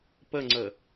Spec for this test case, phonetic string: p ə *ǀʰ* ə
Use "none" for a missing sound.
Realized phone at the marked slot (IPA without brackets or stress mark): ŋ͡ǀ